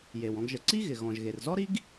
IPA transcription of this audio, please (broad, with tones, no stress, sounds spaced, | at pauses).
j e˩ w ɔ̃˧ ɡ ʒ ə˩ ǀ i˥ ɣ ɪ˩ ɣ ɔ̃˩ ʒ ɣ e˩ r z ɔ˥ ɾ i˥ ɡ